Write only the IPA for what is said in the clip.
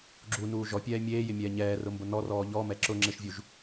ɡ͡ǁ u n uː ʒ ɔ pʲ ɛː mʲ eː j ɪ mʲ ɛː ɲ ɛː r ʊ m b ʊ n ɔ r ɔː ʎ ɔ m ɛ ǁ ʊ ŋ͡ǁ ɪ ʃ vʲ u ʒ

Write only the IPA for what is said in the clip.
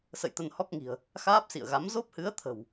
s ə̰˧˨ j t̪ ə˧ n h ɔ˦˥ k̚ ŋ i̤˨˩ ə̯ | x aː˦˥ p̚ s ḭ˧˨ ə̯ ɣ a˨˦ m z o˦˥ p̚ h ɨ˨˦ ə̯ t̪ʰ ə̤˨˩ w

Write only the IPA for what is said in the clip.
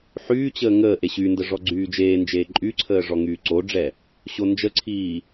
ħ yː t͡ɕ əː ŋ əː ʔ e ɕ y n d ə ʐ ɔ ɡ͡ǀ yː d͡ʒ eː n d͡ʒ eː ǃʼ y ǀʰ əː ʐ ɔ ŋ yː ǀ o ɖ͡ʐ ɛ | ɕ o n d͡ʒ ə ǀʰ iː

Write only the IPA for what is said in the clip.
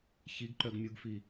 ç i ɡ ǃ œ ɡ mʲ u ɡ f i

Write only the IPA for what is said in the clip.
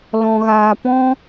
l ɔ̃˧ ɣ aː˧ p ɔ̃˦

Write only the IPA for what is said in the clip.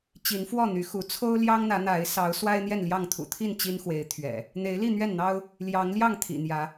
t͡ɕ i˨˦ n f w ɔ˥˨ n̪ y˨˦ x u˨˦ t͡sʰ o˦ ʊ̯ l j ɑ˦ ŋ n̪ ä˨˦ n̪ a˨˦ ɪ̯ s ɑ˨˦ ʊ̯ s w a˦ ɪ̯ n̪ j ɛ˥˨ n l j ɑ˥˨ ŋ t̪ʰ ṵ˨˩ t̪ʰ i˥˨ n t͡ɕ i˦ n x w e˨˦ ɪ̯ t̪ʰ ɥ ɛ̰˨˩ | n̪ e˨˦ ɪ̯ l i˥˨ n̪ ɥ ɛ˥˨ n n̪ ɑ˦ ʊ̯ | l j ɑ˨˦ ŋ l j ɑ˥˨ ŋ t̪ʰ ḭ˨˩ n̪ j ä˨˦

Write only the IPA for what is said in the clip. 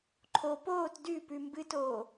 ǃʰ o p oː t d ʉ p ʉ m b ɨ t oː

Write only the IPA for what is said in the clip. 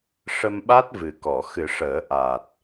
ʂ ə˧ m ɓ a˦˥ t̚ v ɨ˨˩ k ɔ˨˩˨ x ɨ˨˩˦ ʂ əː˨˩˦ ʔ a˨˩ t̚

